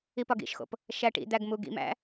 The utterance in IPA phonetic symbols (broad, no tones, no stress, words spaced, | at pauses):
ipɒɡḭʃxo̰p | ʃæʈḭd̪æɡ muɡḭmæ̰